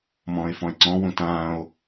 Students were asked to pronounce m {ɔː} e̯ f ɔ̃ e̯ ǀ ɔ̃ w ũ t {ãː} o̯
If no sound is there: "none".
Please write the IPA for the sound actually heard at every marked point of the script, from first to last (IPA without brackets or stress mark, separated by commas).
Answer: ɔ̃ː, ãː